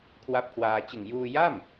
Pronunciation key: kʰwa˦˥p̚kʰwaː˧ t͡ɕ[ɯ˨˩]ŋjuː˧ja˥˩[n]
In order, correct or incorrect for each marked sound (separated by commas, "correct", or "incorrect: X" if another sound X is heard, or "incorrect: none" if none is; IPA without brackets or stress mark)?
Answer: correct, incorrect: m